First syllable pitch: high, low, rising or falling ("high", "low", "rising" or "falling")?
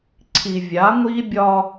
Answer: low